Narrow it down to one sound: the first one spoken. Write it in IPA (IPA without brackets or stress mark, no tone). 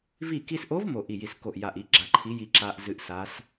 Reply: v